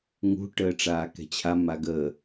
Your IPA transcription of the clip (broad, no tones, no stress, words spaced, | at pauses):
ŋṳʈəː ʈ͡ʂaːkɛ̤t͡ɕʰa maɡəː